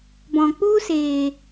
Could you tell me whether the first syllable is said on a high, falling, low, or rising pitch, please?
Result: low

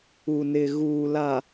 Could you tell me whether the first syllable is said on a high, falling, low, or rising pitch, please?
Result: low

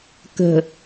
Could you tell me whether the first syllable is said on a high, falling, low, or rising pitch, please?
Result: low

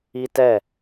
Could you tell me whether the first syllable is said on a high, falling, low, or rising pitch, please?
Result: high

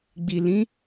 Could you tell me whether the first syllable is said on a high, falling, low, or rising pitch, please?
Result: low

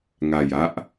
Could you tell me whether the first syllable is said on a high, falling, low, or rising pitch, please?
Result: low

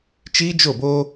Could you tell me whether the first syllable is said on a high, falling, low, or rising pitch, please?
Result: high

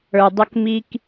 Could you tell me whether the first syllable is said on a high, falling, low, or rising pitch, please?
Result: low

